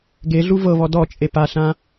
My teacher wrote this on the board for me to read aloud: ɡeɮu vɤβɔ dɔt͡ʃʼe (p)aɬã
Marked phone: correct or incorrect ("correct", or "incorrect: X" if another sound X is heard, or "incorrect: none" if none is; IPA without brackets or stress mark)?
correct